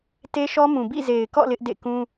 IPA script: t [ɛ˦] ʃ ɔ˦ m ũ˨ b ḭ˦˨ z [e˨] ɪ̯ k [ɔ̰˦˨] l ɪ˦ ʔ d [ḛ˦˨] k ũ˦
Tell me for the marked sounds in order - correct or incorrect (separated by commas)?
incorrect, correct, correct, correct